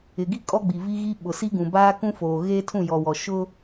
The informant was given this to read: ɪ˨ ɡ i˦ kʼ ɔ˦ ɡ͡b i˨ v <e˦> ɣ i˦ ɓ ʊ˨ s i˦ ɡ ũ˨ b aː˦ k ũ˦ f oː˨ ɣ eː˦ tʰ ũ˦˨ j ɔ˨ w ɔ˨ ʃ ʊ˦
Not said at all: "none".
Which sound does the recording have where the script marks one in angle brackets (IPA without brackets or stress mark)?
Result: i˦